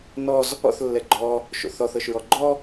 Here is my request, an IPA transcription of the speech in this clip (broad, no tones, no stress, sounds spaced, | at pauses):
n ɔ z | ɔ̰ θ lː ɛ ɡ͡ǃ ɔ | ʃ o̰ θ ɔ θ ɤ ʃ ɹ ɔ ɡ͡ǃ ɔ